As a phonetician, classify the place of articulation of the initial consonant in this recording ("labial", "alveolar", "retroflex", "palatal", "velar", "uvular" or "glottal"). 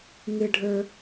velar